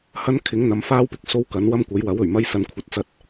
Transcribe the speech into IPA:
hɐ˥nkʰɪ˨˥ŋn̪ɐ˨˧m faː˥wpɪ˨k̚so˥w kɐ˨˥n wɐ˥mkʷɐ˨˥jwɐ˨˥w ɵ˨˩ɥmɐ˥j sɐ˨nkʷʰɐ˨t̚t͡sɐ˧t̚

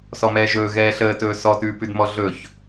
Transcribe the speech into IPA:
sɔmɛːʒɵː ɣɛːɬəːtɵː sɔtʉːpʉdmɔ ɮɵç

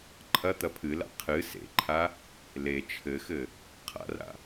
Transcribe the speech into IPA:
ǃʰɐ t̪ɐpʰɨla̰ qʰɨ sḛǃʰa | le t͡ʃʰɘxɘ | qʰa̰ra̰

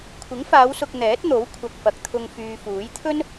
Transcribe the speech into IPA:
kʷʰɪ˨˥ŋfaː˨˧wsʊ˨k̚ n̪ɛː˨˥t̚n̪o˨˥w kʷʰɐ˨k̚fɐ˨k̚t̪ʰʊ˧ŋ fyː˨fuː˨˥j t̪ʰɵ˥n

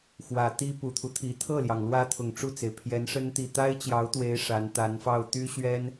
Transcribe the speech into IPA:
xwä˨˩ t̪i˥pu˨˩t̪ʰu˦t̪ʰi˨˩ t̪ʰɤ˥˩ljɑ˩ŋ lwä˥t̪ʰʊ˨˩ŋ ʈ͡ʂu˥˩t͡se˩ɪ̯pʰjɛ˧˥nʂə˥n t̪i˥˩ t̪a˥ɪ̯t͡ɕjɑ˧˥ʊ̯t̪we˧˥ɪ̯ ʂa˧˥n t̪a˧˥nfɑ˥˩ʊ̯ t̪y˥ɕɥɛ˥n

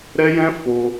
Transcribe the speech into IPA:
ɾɛ˦jɛ̃˦ fo˧

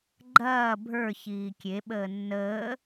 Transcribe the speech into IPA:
ɡ͡ǃɐː bʱə˞ çiːkʲe ɓəːnːəː

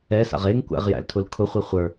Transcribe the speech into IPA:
ɛsa̰ʁ eŋkʷæ̰ʁjæ̰ltʰʊl kʰʊχʷe χʷə˞

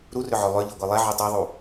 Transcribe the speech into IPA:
ɾurʏʕœ lˠøʎiɡʷi lˠɛʕu tˤiðˤu

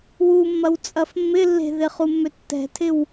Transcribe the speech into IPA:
wumːɐw t͡sʼɐfmːɪ lːe̤ðɪχu mːøtːɛ̤tʰɪw

